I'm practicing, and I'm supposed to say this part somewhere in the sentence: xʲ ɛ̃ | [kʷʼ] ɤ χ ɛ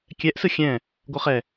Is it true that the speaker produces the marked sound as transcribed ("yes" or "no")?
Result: no